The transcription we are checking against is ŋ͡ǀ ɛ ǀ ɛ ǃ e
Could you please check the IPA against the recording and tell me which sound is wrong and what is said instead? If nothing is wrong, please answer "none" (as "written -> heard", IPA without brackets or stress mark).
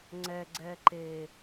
ǀ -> ɡ͡ǀ